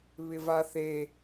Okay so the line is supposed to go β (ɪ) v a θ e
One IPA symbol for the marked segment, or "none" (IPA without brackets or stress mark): ɪ